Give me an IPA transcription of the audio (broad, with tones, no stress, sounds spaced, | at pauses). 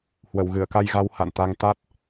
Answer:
h w ə˧˩ w ɣ ɨ˧˩ ə̯ k a˧ j ɣ a˨˦ w h a̰˧˨ n t̪ a˧ ŋ t̪ a˦˥ t̚